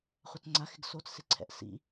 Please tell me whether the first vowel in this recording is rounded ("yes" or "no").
no